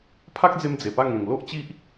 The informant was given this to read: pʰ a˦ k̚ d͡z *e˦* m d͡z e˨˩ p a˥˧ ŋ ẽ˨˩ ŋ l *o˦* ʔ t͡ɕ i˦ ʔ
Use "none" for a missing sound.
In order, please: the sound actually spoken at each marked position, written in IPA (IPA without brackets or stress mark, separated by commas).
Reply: e˧, o˦